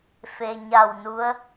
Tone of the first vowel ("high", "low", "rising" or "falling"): low